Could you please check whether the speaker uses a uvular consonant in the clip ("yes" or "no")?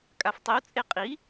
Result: yes